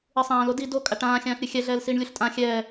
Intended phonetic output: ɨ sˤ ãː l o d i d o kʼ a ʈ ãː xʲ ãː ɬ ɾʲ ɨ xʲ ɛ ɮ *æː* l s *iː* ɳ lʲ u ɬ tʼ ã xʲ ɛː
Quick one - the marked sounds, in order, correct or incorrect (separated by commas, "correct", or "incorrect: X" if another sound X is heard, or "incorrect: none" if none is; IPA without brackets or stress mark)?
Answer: incorrect: ɛː, correct